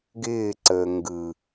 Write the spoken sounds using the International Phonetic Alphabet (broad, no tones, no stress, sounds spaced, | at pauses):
ɡ ɪː ǀ əː ŋ ɡ ɯ